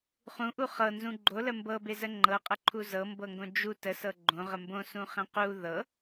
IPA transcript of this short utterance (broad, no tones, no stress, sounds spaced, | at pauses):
χ ũ ʔ u χ ɤ n z ũ ɡ͡ǃ o l ə m b ɤ b e z ə ŋ͡ǃ ɤ qʼ ə ǃʰ u z ɤ m b ɤ ŋ ɡ õ d͡ʒ u t ə s ɤ ɡ͡ǃ õ ʁ ə m b õ s ũ χ ẽ q u ð ɤ